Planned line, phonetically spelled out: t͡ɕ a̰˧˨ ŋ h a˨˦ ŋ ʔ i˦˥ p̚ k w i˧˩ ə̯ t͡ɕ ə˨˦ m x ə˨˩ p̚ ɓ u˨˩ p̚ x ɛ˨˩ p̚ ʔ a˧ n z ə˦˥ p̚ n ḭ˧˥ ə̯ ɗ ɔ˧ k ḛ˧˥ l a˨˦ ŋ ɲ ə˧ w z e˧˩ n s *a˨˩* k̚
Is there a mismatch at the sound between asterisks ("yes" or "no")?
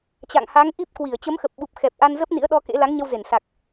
no